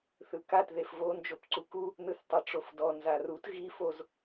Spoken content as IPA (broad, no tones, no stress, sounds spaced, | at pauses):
θ ɯ k a t ð e f v o n d͡ʒ o p ǀ u k u | n ɯ θ tˤ ɯ ʈ͡ʂ o f d ɔ n z a r u t ɣ i f o z